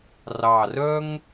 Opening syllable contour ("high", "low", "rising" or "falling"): low